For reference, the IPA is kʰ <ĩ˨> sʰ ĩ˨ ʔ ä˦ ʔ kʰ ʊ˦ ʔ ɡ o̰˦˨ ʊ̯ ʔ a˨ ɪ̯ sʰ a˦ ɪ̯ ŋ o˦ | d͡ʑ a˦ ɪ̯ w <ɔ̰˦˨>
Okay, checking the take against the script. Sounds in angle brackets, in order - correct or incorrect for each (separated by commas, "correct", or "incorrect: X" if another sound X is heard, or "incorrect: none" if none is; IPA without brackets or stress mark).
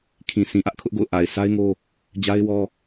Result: correct, incorrect: ɔ˦